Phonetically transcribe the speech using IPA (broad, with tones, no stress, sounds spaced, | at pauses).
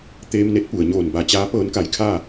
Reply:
t̪ eː˧ m n e˧˥ t̚ p u˩ ə̯ ɲ oː˧˩ n b a˧˩ t͡ɕ aː˧˥ p ɤː˧˥ n k a˧˩ j kʰ a˥˨